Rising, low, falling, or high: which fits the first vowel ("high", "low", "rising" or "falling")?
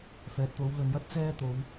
low